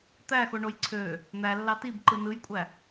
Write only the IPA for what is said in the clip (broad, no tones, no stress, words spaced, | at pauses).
t̪æxoɳoj ǀʰø | n̪ælːɑ tibǃɯ nɯjkʷʼæ